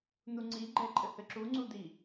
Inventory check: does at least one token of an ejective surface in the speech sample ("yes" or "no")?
yes